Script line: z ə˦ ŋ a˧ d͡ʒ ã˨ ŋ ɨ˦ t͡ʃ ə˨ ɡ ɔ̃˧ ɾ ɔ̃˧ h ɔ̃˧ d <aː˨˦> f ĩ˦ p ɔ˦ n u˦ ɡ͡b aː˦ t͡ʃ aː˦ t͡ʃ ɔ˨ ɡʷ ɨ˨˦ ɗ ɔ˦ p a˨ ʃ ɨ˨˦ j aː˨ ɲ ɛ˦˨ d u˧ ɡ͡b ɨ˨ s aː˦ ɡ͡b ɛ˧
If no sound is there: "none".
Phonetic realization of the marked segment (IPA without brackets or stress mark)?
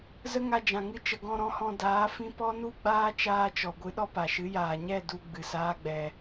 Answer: aː˨˦